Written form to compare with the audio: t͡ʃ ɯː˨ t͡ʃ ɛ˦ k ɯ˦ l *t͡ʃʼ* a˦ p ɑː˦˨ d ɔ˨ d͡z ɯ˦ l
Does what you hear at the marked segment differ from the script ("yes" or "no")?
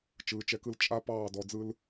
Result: no